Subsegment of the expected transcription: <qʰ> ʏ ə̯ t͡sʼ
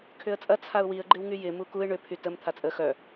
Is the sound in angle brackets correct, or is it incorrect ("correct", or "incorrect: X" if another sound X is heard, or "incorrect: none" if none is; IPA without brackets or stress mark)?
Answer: incorrect: kʰ